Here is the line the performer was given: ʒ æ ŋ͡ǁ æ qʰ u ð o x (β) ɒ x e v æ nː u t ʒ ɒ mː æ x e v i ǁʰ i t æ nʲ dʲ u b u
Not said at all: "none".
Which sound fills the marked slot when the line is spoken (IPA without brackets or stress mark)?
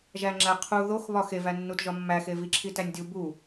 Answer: β